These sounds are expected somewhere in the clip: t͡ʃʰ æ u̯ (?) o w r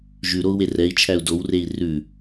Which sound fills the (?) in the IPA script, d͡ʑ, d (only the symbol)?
d